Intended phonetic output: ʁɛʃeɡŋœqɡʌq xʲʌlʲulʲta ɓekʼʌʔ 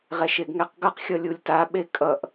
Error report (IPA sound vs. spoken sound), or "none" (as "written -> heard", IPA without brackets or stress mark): œ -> ɛ